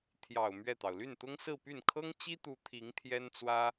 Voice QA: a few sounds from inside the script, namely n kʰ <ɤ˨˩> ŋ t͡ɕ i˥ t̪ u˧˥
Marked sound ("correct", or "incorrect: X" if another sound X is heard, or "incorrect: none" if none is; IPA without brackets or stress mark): incorrect: ɤ˥